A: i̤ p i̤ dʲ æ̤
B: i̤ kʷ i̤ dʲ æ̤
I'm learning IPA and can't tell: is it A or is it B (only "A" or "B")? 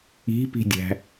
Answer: A